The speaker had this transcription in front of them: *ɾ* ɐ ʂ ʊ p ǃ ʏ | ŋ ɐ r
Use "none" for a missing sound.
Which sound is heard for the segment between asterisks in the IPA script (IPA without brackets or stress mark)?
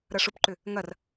ɾ